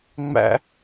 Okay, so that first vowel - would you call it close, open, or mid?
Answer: open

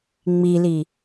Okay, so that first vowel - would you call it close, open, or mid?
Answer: close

